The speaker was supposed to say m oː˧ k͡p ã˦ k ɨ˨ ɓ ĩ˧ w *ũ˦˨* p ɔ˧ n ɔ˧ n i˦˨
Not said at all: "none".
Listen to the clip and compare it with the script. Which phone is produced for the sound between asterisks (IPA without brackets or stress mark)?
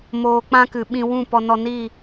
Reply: ũ˦˨